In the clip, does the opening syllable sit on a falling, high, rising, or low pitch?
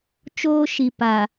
high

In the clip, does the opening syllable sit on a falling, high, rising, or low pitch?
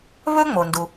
high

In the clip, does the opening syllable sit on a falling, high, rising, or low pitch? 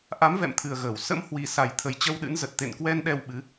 rising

